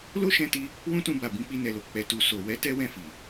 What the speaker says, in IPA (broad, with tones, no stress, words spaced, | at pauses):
lo˦ʃɛ̃˧ti˧ | wũ˦tũ˧ba˨ bĩ˧k͡pi˧nɛ˨lo˨ k͡pɛ˨tu˨ so˨ wɛ˨˦ tɛ˦wɛ̃˦˨fi˨